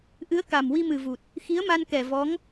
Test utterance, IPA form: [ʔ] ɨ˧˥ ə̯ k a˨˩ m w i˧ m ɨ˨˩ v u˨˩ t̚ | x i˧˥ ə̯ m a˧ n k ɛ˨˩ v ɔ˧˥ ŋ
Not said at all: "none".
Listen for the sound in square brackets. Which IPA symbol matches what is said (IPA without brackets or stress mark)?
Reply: ʔ